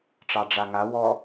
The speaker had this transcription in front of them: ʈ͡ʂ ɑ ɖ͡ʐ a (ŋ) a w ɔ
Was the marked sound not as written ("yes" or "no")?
no